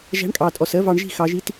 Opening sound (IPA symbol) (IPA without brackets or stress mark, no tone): ʒ